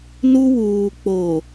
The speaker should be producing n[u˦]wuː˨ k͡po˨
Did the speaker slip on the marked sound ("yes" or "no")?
no